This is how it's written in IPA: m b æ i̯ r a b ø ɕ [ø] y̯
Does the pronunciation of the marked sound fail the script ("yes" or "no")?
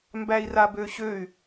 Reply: no